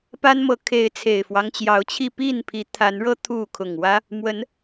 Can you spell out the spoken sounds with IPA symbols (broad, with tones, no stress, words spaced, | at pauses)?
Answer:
pa˦nmɤ˨˦kʰe˨˦ɪ̯ t͡sʰe˨˩ɪ̯fwɑ˦ŋt͡ɕjɑ˨˦ʊ̯t͡ɕʰi˥˨ pi˥˨npʰi˨˦ t̪ʰa˨˦n ɻɤ˦ t̪ʰu˥˨ kʰʊ˨˩ŋwä˦ | mwə˨˦n